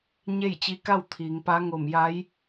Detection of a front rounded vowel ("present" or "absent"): absent